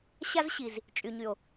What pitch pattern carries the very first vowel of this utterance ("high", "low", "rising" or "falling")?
high